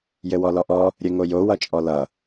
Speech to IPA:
jɘwɔlɔʔɔ | ɾʲɘŋojo wʌt͡ʃʼɔlʌ

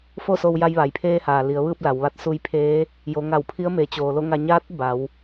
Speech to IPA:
fo˥˨so˧wja˧j ʋa˩˧jpʰeː˧haː˩ li˩˧ə̯ʋɯː˥˨p̚ la˩˧wʋa˧˥t̚ su˧jpʰeː˧˥ | jo˩˧ŋa˧˩wpʰi˧˥ə̯ meː˩˧t͡ɕoː˩lo˥˨ŋa˧ ɲaː˧˥t̚ ba˩˧w

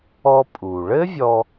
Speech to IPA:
ɔ˧pʼu˩ ɭɘ˥vʲɔ˧

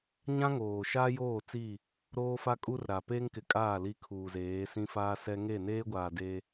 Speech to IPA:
ɲã˦ŋoː˨ ʃaː˦joː˦˨t͡si˦˨ | ɾoː˦fa˦kʼu˦rɾa˨ pe˦ŋkɪ˨kʼaː˦˨ li˦kʰuː˨zeː˨˦ sĩ˦faː˦sɛ˦ ŋe˦˨neː˦ɡʷaː˨ de˦

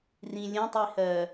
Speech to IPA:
rĩ lʲə̃tˤihɜ

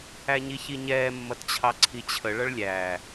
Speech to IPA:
æɲiçiɲɛː mːʌtt͡ɕʰɑǀʰit͡ɕʰə ɭʌɭlʲæː

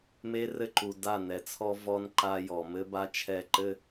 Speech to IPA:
me˦rɘ˦ ǃu˨da˦˨nɛ˨t͡sʰɔ˦ vɔ˦nǃa˦ jɔ˨mɘ˦ ba˦t͡ʃʰɛ˦˨ǃɘ˦

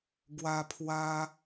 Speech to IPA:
ɡwa˧pʰwa˧

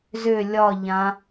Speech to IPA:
zʏ lʲɒʎã

